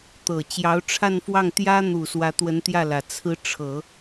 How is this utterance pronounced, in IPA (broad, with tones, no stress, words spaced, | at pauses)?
t̪ɤ˨˩t͡ɕjɑ˧˥ʊ̯ʈ͡ʂʰa˥˧nfwɑ˥˩ŋ t̪jä˥n̪u˨˩ swä˧˥t̪wə˧˥nt̪jä˥˩lä˨˩ t͡sʰɹ̩˧˥ ʈ͡ʂʰɤ˨˩˦